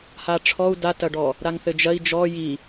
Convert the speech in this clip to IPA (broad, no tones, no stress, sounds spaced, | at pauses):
h a ʈ͡ʂʰ ɔ u̯ d a t ɐ ɖ ɔ | ɾ a ŋ θ ɘ d͡ʒ ɐ i̯ d͡ʒ ɔ j i